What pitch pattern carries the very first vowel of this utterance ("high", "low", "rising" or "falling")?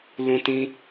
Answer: high